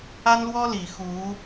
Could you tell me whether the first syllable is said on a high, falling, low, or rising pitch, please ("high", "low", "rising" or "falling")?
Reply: high